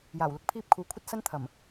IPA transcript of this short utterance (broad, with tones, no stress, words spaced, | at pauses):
jaː˨˩wlʊ˥k̚ pʰiː˧p̚ kʰuː˨kʷʰɐ˥t̚ sɐ˥nt̪ʰɐ˨˩m